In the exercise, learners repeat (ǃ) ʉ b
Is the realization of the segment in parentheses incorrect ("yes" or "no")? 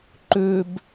no